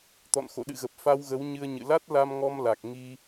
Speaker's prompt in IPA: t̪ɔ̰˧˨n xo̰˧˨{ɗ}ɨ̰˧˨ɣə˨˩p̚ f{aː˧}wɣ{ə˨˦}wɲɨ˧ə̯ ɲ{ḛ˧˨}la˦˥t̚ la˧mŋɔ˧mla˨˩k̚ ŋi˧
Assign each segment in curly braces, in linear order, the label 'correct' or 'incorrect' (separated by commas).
correct, incorrect, correct, incorrect